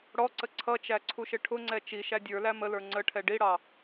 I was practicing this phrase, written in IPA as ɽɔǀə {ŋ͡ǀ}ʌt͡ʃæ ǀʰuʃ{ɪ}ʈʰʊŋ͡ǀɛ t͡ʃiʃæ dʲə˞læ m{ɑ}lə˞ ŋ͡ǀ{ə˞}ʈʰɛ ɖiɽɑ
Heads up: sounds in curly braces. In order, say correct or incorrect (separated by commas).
incorrect, correct, incorrect, incorrect